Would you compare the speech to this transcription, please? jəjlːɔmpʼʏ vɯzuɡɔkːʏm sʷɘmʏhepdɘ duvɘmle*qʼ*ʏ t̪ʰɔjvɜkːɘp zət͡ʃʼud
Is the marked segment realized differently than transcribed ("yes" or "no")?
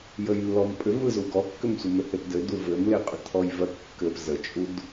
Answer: no